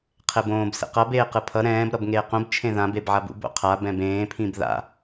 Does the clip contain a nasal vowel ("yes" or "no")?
yes